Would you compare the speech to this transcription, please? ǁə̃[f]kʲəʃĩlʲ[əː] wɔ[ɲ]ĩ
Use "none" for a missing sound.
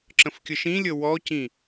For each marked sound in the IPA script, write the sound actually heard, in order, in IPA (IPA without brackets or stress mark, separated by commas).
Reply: f, ə, c